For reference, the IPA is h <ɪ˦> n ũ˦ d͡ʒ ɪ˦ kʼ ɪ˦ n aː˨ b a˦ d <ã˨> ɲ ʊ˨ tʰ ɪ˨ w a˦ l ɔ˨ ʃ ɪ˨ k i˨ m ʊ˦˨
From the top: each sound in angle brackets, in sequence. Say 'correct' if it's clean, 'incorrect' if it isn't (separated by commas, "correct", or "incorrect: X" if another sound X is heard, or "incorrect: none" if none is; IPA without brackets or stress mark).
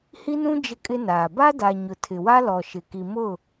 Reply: incorrect: i˦, incorrect: a˨